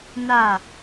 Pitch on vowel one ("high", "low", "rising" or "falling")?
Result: falling